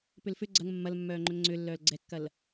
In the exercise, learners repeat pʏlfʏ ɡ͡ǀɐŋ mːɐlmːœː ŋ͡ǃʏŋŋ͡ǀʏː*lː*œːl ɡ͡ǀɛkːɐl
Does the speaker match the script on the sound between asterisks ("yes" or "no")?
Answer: yes